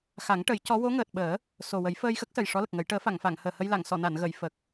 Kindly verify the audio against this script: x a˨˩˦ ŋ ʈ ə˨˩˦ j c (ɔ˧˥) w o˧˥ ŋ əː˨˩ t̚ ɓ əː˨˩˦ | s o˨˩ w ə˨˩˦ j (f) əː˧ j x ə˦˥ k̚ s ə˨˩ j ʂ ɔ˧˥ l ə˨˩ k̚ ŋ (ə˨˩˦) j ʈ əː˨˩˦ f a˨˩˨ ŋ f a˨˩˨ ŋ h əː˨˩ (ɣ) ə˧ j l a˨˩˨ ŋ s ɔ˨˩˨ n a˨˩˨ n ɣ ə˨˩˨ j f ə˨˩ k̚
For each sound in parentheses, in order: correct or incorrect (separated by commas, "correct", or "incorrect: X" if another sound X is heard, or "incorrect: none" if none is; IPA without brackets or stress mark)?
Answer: correct, correct, correct, incorrect: h